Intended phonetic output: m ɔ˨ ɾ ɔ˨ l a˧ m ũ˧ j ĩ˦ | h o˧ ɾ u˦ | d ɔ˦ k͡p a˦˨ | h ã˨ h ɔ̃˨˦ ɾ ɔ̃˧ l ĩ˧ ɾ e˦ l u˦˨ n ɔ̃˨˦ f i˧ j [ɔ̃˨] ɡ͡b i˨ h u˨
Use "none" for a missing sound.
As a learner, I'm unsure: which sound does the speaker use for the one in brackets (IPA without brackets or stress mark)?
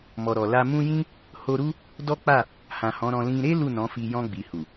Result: ɔ̃˧